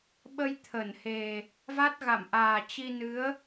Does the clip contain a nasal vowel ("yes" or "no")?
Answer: no